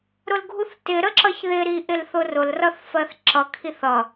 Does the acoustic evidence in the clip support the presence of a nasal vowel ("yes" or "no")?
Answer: no